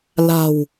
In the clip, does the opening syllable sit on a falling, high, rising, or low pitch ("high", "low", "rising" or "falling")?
low